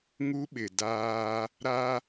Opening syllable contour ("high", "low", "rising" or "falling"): high